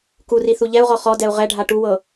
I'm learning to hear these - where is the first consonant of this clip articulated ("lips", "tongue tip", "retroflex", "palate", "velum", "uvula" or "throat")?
velum